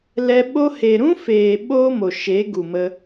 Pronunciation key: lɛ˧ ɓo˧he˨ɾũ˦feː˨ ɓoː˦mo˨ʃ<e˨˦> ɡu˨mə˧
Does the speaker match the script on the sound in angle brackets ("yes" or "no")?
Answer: yes